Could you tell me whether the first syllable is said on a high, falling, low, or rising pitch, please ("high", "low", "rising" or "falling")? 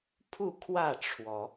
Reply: falling